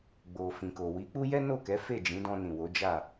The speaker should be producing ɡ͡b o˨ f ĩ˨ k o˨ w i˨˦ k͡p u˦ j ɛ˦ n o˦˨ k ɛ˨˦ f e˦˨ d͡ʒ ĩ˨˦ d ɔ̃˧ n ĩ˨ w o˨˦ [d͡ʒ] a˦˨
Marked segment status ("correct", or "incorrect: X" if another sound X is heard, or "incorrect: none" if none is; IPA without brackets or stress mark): correct